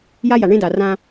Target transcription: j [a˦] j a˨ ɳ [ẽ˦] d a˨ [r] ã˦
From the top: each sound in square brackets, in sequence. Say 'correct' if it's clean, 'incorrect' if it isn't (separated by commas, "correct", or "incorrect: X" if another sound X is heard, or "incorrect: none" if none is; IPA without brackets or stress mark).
correct, correct, correct